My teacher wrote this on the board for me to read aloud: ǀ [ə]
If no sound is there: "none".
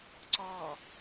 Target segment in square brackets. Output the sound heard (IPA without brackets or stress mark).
ɔ